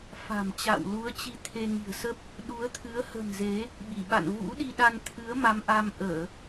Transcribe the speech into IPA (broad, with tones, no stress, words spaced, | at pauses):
fa̤˨˩mt͡ɕa̰˧˨w lu˨˦ə̯t͡ɕi˧ t̪ʰe˧ŋi̤˨˩ə̯ sə˦˥p̚ | ɗu˨˦ə̯t̪ʰɨ˨˦ə̯ hə̤˨˩n ze˨˦ | ɓi˧˩ɓa̰˧˨n vṵ˧˥ɗi˧ɗa˧n t̪ʰɨ˨˦ə̯ma˨˦mʔa˧m ʔəː˧˩˨